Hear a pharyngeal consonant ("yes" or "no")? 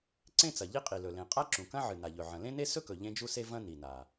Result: yes